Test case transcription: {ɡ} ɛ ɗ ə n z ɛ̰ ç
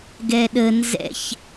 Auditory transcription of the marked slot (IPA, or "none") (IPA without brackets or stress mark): ɡ